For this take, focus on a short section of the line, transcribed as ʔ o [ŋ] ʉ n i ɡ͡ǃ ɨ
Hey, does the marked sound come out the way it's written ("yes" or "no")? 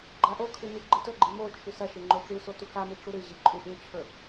no